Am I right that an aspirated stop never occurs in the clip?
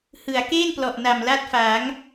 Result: yes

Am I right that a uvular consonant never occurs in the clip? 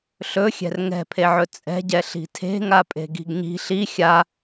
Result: yes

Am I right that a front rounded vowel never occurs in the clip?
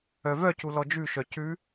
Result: no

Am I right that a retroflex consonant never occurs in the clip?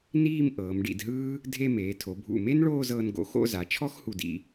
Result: no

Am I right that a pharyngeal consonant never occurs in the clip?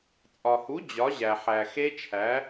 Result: no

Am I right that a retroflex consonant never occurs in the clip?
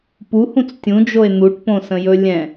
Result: no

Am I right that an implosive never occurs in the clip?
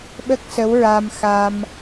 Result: no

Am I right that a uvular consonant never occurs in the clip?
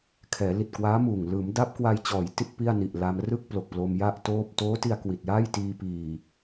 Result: yes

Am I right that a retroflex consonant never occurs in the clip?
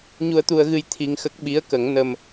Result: yes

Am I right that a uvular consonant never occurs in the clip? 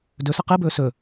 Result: no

